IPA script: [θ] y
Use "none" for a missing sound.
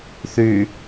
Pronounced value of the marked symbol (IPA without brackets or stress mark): θ